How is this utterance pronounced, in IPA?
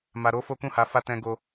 m a˧ ɾ o˦ f o˦ k ũ˦˨ h a˧ f a˦ t ɛ̃˧ ɡ o˦

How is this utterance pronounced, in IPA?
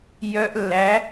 j œ˧ ʔ lː æ˩˥

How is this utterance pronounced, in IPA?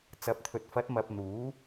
t͡s ɐ˨˥ p̚ t̪ʰ ɵ˨ t̚ f ɐ˨˥ t̚ m ɐ˨ p̚ n̪ uː˨˥

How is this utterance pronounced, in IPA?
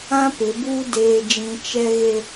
ã˦ p ɪ˨˦ b uː˦ d eː˦ d͡ʒ ĩ˦ t͡ʃ ɛ˦ ɣ e˦

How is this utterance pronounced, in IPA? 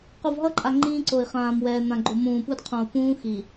q u˨ v ɦ ʌ˦ ǃʼ a˨ ŋ͡ǃ ĩː˦ ǀ o˨ i̯ χ ãː˨ m w ɛː˨ n̪ ã˨ ɡ͡ǃ o˨ m ũː˨ p u˦ d qʰ õ˨ u̯ p ũː˦ x i˨

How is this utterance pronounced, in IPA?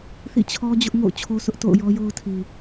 θ ḭ˦˨ t͡ɕʰ ɔ˦ d͡ʑ ʊ˦ ʔ ŋ o̰˦˨ ʊ̯ t͡ɕʰ o˦ s ʊ˦ ʔ t o̰˦˨ ʊ̯ j ɔ˦ j o˦ ʊ̯ tʰ i˨

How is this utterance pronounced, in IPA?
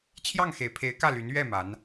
t͡ɕʰ j ɑ˥˩ ŋ x e˨˩ ɪ̯ pʰ e˧˥ ɪ̯ k ä˥˩ l y˧˥ n ɥ ɛ˥˩ m a˧˥ n

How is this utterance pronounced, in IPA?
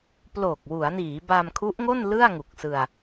p l oː˨˩ k̚ w u˩˦ a̯ n iː˩˦ b a˧ m kʰ u˦˥ ʔ ŋ o˥˩ n l ɯ˥˩ a̯ ŋ u˨˩ k̚ s ɯ˧ a̯

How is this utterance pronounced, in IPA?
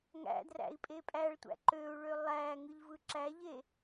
ŋ æ̰ d r æ̰ i̯ pʼ e pʼ æ ɭ tʷ æ̰ ǃ ø u̯ ɭ ø lˠ æ ŋ ɯ ʎ v ɯ ǁ æ ʎ e

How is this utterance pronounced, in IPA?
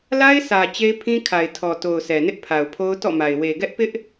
l a˦ ɪ̯ s ä˨ t͡ɕ e˦ ɪ̯ pʰ ĩ˦ kʰ a˨ ɪ̯ tʰ ɔ˨ t o˨ ʊ̯ sʰ ɛ˨ n ɪ˦ ʔ pʰ a˨ ʊ̯ pʰ o˦ ʊ̯ t ɔ̰˦˨ m a˨ ɪ̯ w e˨ ɡ ɛ˦ ʔ p ɪ˦ ʔ

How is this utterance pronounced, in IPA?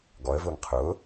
ɡ ɔ ə̯ v ʊː ŋ qʰ ʊː

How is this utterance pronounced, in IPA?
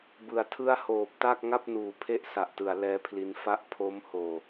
b ɯ˨˩ a̯ tʰ ɯ˥˩ a̯ h oː˨˩ p̚ t a˥˩ k̚ ŋ a˥˩ p̚ n uː˨˩ pʰ e˥˩ ʔ s a˨˩ ʔ t ɯ˩˦ a̯ l ɛː˦˥ pʰ l i˦˥ n f a˦˥ ʔ pʰ o˦˥ m h oː˨˩

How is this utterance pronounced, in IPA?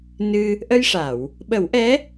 n ɨ˧ | ʔ ə˧ j ʂ a˨˩˨ w | ɓ ə˨˩˦ w ʔ ɛ˧˥

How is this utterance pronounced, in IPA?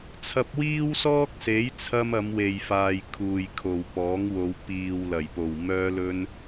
t͡sʰ ɐ˧ p̚ w iː˥ w s ɔː˥ k̚ s e˨˥ j t͡sʰ ɐ˧ m ɐ˨˧ m w e˨ j f aː˨ j kʰ uː˨ j kʰ o˨ w p ɔː˨˥ ŋ w o˨˧ w p iː˨ w l ɐ˨˩ j p o˨˩ w m œː˧ l ɵ˧ n

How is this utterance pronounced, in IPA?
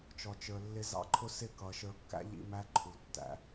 t͡ʃ ɔ˨ t͡ʃ ə˞˨ lː ɪ˧ z ɑ̰˦ ǃʰ ʊ˦ s ɪ˦˨ k ʌ˨ ʃ ə˞˧ kː æ̰˦ ʎ ḭ˧ m æ˦ ǃʰ u˨ tː æ̰˧

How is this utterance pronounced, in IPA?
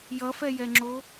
j ʌ f ɛ j ɛ ŋ͡ǁ o

